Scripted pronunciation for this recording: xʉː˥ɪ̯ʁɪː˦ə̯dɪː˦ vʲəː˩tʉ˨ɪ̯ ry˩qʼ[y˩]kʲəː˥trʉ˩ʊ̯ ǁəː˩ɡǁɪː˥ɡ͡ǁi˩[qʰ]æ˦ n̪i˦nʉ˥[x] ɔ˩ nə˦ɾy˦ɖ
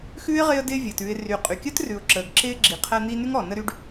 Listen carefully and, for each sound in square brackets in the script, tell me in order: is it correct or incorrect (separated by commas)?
correct, correct, incorrect